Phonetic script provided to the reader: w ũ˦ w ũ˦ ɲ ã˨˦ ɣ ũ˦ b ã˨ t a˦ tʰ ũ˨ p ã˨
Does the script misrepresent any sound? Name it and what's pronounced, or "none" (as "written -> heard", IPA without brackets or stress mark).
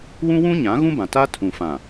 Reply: p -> f